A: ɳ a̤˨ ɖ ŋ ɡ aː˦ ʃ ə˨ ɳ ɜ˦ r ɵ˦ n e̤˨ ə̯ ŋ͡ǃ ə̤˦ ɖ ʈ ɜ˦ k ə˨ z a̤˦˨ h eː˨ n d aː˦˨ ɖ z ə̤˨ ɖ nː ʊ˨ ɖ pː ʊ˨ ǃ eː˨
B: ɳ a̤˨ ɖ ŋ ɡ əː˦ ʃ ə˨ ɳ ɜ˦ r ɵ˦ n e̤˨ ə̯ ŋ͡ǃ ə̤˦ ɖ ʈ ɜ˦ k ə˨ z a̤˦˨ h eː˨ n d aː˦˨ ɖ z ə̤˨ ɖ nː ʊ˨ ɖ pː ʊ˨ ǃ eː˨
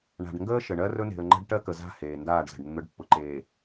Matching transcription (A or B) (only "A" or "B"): B